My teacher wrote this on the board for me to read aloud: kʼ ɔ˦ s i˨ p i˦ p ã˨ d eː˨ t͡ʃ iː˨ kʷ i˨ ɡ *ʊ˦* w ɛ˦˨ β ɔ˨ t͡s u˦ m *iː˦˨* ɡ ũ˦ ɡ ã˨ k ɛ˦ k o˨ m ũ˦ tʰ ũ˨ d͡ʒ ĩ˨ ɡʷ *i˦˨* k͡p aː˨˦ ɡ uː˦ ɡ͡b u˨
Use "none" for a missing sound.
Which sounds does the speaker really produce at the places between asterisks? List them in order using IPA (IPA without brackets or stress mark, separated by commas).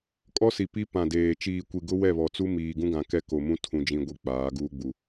ʊ˦, iː˨, i˨